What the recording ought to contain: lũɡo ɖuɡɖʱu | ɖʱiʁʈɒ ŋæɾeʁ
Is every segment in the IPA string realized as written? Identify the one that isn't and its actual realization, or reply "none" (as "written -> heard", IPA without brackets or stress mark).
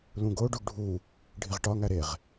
none